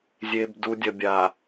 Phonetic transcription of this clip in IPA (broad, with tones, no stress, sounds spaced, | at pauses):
zʲ e˨ b d u˨ dʲ ɐ˨ bʲ a˨